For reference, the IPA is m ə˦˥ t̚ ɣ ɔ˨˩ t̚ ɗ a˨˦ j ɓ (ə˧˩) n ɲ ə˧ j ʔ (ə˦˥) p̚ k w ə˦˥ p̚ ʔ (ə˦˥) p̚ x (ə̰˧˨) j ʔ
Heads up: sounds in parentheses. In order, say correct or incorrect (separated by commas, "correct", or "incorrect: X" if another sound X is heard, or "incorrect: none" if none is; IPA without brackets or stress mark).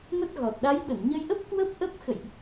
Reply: correct, correct, correct, correct